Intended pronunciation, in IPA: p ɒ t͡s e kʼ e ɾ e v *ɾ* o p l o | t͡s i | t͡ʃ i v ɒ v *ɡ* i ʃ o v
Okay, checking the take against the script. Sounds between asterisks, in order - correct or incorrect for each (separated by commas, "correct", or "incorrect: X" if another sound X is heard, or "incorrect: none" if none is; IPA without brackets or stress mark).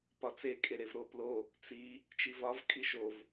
correct, incorrect: kʼ